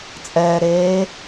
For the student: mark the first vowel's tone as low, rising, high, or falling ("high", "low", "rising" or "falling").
low